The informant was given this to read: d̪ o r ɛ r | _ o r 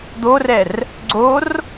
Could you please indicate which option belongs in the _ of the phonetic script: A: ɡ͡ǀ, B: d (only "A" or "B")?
A